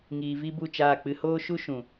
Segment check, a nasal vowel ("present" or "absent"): present